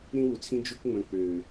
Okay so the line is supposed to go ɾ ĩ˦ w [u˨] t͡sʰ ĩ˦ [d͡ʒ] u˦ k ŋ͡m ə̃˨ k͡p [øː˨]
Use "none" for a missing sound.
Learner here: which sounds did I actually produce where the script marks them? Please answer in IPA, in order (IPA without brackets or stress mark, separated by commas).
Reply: u˨, d͡ʒ, øː˨